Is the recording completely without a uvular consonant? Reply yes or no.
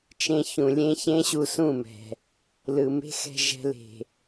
yes